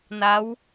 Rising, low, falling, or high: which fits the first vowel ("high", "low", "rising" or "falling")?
rising